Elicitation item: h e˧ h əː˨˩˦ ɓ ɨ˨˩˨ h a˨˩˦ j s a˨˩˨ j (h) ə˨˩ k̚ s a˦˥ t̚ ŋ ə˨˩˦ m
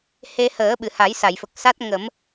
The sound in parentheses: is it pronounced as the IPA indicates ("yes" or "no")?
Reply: no